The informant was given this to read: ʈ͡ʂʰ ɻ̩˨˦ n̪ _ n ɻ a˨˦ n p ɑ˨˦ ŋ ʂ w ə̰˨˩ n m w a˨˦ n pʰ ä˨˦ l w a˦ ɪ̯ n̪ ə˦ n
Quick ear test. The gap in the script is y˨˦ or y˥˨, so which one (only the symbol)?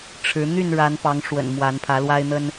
y˥˨